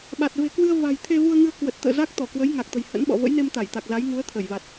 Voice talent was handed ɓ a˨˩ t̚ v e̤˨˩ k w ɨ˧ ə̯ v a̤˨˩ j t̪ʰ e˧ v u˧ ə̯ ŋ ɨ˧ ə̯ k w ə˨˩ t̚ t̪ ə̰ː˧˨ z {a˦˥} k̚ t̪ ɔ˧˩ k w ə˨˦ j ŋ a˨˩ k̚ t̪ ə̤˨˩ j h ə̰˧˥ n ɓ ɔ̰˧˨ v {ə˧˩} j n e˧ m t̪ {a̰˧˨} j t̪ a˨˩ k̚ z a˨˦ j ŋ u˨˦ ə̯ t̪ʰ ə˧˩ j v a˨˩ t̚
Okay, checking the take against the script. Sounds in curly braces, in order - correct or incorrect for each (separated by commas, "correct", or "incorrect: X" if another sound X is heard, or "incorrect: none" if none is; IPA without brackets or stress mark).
correct, incorrect: ə̰˧˥, incorrect: a˧˩